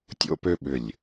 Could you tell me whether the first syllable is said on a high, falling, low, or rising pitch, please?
high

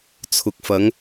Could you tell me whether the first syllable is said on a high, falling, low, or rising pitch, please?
rising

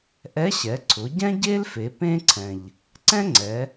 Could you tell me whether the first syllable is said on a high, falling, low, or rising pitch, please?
rising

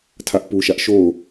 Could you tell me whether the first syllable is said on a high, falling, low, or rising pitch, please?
high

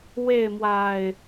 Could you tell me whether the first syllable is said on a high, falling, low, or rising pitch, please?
falling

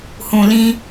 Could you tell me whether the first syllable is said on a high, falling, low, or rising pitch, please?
low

